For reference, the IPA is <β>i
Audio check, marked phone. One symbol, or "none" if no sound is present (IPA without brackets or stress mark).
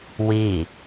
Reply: w